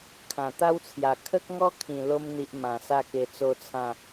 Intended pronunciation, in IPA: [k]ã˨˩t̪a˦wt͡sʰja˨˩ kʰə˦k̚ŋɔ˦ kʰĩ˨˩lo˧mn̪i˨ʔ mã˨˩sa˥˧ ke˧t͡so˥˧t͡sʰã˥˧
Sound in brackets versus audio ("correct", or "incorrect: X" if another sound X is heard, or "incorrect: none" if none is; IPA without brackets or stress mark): incorrect: kʰ